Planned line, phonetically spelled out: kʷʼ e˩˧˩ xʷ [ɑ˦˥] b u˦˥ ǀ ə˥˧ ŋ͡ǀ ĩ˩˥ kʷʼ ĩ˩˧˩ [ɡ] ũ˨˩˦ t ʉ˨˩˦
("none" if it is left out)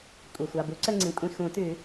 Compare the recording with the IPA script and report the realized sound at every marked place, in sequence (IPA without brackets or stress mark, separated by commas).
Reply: ɑ˩˧˩, x